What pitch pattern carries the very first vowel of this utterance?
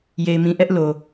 low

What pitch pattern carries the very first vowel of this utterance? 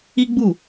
high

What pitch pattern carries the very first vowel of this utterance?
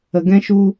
low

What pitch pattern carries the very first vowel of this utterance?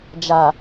low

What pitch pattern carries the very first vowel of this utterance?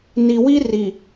low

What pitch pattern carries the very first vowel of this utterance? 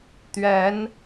rising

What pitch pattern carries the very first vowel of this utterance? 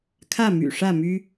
falling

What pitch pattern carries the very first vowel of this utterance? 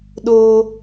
high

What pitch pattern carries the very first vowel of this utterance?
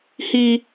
low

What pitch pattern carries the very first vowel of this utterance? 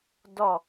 falling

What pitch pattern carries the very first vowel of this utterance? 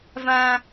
high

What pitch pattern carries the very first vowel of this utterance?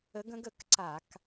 rising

